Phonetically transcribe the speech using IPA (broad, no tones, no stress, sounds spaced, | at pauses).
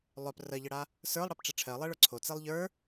lˠ œ p r ɜ ʎ ə ɽ a | s ə˞ lˠ ɽ e p ʈ͡ʂ e ʈ͡ʂʰ ɜ lˠ ɛ ɭ ə˞ ǀʰ o t͡s e lˠ ʎ ə˞